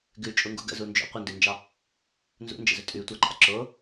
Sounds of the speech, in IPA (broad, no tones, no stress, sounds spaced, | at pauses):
ɡ ʉ t͡ʃʼ u ŋ ɡ ṵ ɡ ə̰ z u n d͡ʒ o̰ qʷ ə n d ʉ n d͡ʒ ɑ | n z ṵ n d͡ʒ ə̰ z ɵ tʼ ʉ tʷ ɑ ǃ a̰ ǁ o